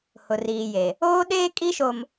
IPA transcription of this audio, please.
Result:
h ʊ˨ r iː˨ j e˨ | oː˦ ɗ eː˦ kʼ i˦ ʃ o˨ m

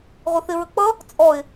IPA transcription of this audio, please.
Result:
ʁʷ ə θ ɪ ɹ ə k͡p ʌ | t͡sʼ ɔ ɪ̯

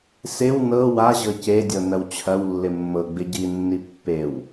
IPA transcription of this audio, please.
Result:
s ɪ w n ɤ w a ʑ ɤ c e dʲ ɤ n ɐ w t͡ɕʰ ɐ w lː ɪ mː ɤ ɡ͡b ɪ ɟ i nː i pː e w

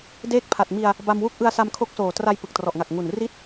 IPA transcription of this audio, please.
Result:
d eː˦˥ k̚ pʰ a˨˩ t̚ m i˧ a̯ | b a˧ m w u˥˩ k̚ ʔ ɯ˧ a̯ s a˧ m kʰ o˦˥ k̚ s oː˨˩ t r a˧ j p ɯ˨˩ k̚ t r ɔ˨˩ ʔ ŋ a˨˩ k̚ ŋ u˨˩ n r i˥˩ t̚

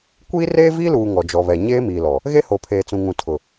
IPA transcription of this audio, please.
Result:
kʷ iː˦ r eː˦ v iː˦ l uː˨ ŋ ɔ˨ d͡ʒ ɔ˨ β ɛ˨ ɲ eː˦ m iː˨ l ɔ˨ | ɣ e˦ h o˨ pʰ eː˨ t͡s ũ˨ ŋ ũ˨ tʰ ʊ˨

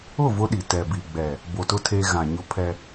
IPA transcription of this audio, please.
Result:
ʊ˦˨ v ʊ˦ ɗ i˨ t ɛ˨ b i˨ ɡ͡b ɛ˨ | b o˨ t ʊ˦ tʰ e˦ ɣ ã˨ ɲ ʊ˦ pʰ ɛ˦

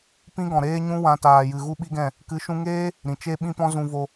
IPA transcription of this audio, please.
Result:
p ĩ˦ ɡ ɔ̃˨ ɾ eː˦ ɲ ũ˧ w ã˧ t aː˨ j ɨ˨ ɣ u˦ ɓ i˦ ɡ ɛ̃˦˨ | k ɨ˨˦ ʃ ũ˧ ŋ eː˦ | ɾ ĩ˨ t͡ʃ e˦ ɓ ĩ˦ p ɔ̃˦ z ũ˧ v o˧

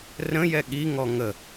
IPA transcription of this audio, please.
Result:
r ə̃ j ɛ ɠ i ŋ ɔ ŋ ə

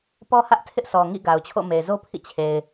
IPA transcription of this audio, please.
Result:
p ɔ˦ h ä˦ ʔ tʰ ɪ˦ ʔ s ɔ˨ ŋ ḭ˦˨ ɡ a˨ ʊ̯ t͡ɕʰ o̰˦˨ m e˨ ɪ̯ z o˦ pʰ ḭ˦˨ t͡ɕʰ e˨ ɪ̯

